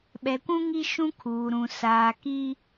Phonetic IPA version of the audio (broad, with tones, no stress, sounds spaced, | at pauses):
ɓ ɛ˨ kʷ ũ˦ ŋ i˦ ʃ ũ˦ kʰ uː˨ ɾ ũ˨ s aː˨ k i˦